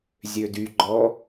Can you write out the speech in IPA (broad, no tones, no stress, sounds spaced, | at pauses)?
zʲ ø d y ɡ͡ǃ ɔ